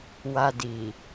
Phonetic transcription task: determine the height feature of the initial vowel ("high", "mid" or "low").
low